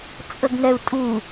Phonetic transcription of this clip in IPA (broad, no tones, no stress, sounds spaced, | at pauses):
t͡sʼ ə ɡ n ɛ u̯ tʼ u